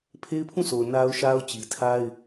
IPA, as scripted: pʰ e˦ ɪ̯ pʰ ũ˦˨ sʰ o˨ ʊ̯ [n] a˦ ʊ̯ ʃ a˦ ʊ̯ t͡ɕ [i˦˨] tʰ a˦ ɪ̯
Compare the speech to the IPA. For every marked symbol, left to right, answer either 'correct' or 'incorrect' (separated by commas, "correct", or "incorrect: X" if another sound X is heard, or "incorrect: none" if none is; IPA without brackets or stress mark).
correct, incorrect: i˨